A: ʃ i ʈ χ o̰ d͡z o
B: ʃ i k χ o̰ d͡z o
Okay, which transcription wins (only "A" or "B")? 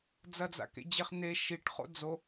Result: A